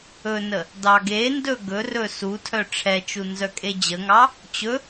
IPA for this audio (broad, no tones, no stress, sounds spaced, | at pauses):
ɵ n ə | d ɑ ɡ e n d ɵ ɡ ɵ r ɵ s u tʰ œ ʈ͡ʂʰ ɛ t͡ʃ u n z œ kʼ e d͡ʑ ə ŋ ɑ | t͡ɕ ɵ